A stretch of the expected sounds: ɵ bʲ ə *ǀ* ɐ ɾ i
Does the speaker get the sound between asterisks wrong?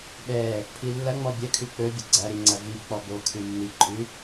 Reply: yes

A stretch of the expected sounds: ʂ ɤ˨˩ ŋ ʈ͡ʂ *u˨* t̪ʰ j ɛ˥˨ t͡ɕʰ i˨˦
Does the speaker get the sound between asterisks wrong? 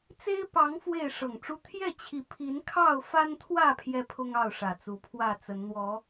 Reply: yes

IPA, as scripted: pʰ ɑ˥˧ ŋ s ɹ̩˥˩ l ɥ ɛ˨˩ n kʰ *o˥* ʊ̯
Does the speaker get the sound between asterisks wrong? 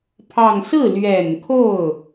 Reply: yes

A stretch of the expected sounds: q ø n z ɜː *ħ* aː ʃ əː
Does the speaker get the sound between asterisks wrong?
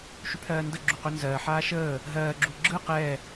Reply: no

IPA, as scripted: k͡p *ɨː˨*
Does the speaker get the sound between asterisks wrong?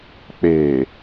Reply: yes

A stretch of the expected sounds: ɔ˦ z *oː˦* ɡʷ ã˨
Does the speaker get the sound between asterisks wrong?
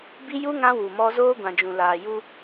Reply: no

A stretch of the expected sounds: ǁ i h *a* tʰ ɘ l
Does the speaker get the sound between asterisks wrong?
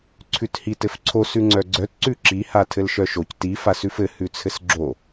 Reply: no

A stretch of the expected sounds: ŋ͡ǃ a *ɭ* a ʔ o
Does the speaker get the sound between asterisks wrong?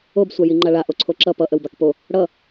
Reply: no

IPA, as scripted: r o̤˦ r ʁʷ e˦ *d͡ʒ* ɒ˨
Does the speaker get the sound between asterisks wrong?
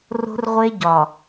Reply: yes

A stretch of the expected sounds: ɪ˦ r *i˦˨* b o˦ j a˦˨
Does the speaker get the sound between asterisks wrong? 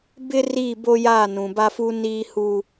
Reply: no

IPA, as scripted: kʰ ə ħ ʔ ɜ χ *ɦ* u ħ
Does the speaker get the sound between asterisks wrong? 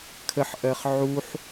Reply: yes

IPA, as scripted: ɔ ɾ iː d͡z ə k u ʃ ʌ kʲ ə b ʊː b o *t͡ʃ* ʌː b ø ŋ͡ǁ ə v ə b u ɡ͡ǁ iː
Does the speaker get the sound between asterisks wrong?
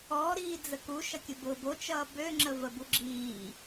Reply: no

